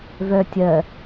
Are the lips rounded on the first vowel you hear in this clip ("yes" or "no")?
yes